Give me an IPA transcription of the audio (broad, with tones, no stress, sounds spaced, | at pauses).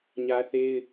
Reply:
ɲ ä˦ θ e˦ ɪ̯